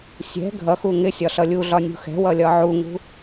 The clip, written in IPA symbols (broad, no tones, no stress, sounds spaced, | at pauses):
sʲ ɛ̤ ɡʱ ʌ x u ŋ ɪ sʲ ɒ ɬ ʌ lʲ u ɮ ɒ nʲ ṳ x ɛ̤ w ʌ lʲ ɒ ʕ u ŋ ṳ